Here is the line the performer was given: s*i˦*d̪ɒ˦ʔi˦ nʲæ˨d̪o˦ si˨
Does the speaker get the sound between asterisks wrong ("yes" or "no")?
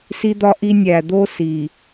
no